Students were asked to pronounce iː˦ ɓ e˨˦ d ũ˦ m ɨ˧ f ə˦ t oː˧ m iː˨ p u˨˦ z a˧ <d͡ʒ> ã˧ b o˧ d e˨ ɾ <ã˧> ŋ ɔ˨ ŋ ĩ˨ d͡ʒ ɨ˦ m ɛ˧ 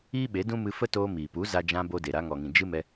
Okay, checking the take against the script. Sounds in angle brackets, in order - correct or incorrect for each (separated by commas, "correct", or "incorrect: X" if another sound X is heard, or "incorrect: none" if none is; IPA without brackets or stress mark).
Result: correct, incorrect: a˧